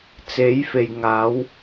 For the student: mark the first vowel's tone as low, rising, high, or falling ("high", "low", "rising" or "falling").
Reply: rising